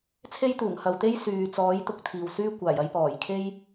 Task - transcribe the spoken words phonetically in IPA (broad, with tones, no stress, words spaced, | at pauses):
t͡sʰe˥jt̪uː˨˩ŋ hɐ˧w t̪e˥jsyː˨t͡sɔː˨˥j t̪ʊ˨˥k̚t̪ʰiː˨wsyː˥ kʷaː˨˩jɐ˧jpɔː˨˩jkʰe˥j